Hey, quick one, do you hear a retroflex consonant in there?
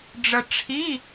yes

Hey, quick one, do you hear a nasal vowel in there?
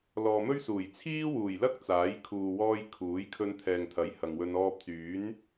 no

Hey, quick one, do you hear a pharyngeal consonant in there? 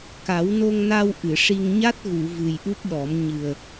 no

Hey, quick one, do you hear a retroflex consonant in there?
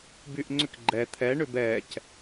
yes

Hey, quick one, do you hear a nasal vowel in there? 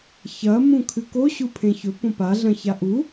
yes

